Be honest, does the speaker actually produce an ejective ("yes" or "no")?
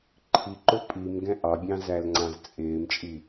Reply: yes